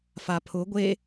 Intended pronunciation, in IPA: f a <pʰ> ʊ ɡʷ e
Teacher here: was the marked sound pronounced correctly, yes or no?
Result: yes